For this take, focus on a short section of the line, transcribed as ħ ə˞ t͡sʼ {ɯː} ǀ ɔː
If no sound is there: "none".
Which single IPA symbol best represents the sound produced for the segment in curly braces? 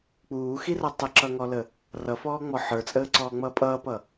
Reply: əː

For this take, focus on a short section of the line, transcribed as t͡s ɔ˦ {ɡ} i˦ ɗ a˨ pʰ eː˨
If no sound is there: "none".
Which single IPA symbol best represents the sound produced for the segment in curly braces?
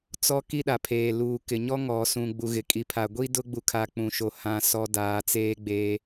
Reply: k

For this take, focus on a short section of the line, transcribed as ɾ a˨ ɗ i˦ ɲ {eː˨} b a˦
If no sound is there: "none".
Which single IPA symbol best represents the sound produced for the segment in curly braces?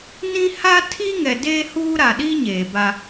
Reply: eː˨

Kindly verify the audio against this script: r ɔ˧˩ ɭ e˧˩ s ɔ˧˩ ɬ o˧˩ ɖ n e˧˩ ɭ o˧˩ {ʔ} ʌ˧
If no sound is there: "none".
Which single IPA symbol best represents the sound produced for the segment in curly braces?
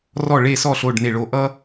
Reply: ʔ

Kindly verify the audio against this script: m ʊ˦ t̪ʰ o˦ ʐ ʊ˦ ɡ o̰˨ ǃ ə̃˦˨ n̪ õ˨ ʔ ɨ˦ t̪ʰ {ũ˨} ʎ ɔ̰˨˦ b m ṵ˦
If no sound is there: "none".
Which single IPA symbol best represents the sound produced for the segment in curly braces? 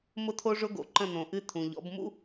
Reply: ũ˨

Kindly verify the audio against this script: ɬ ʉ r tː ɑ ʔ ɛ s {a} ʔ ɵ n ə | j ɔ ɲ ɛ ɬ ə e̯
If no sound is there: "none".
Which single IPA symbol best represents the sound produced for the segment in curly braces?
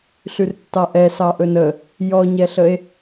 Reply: ɑ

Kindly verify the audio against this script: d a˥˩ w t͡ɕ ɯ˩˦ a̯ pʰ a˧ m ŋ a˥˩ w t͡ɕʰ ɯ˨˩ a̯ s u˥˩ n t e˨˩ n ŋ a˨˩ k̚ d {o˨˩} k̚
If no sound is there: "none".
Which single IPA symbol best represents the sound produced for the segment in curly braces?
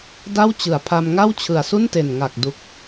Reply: u˨˩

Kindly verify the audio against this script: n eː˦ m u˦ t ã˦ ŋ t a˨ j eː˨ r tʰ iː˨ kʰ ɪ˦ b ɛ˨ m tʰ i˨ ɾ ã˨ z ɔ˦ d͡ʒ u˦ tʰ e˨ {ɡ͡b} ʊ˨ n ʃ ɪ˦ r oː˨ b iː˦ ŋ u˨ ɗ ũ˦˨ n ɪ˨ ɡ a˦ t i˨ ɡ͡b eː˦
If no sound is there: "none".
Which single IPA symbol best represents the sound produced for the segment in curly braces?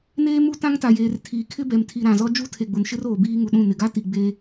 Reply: ɡ͡b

